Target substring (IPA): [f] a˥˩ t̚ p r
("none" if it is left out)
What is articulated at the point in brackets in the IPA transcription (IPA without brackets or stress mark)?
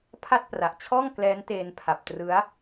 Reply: pʰ